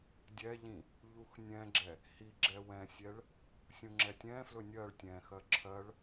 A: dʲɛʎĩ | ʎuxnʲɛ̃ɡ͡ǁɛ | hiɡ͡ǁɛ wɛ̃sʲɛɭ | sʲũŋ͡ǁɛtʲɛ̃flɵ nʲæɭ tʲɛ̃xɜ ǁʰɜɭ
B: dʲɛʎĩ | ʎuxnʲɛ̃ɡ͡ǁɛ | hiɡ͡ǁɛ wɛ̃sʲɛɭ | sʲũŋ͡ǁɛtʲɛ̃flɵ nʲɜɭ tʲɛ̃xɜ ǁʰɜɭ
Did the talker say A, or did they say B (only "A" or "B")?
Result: B